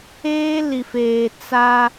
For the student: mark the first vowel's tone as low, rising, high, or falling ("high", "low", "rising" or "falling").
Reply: high